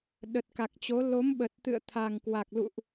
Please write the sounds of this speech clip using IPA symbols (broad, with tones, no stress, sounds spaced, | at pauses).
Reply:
ɗ ə˨˩ t̚ k a˨˩ k̚ t͡ɕ o˨˦ l o˨˦ m ɓ ə˨˩ t̚ t̪ ɨ̰˧˨ ə̯ t̪ʰ a˨˩ ŋ k w a˨˩ k̚ l ṵ˧˨ ʔ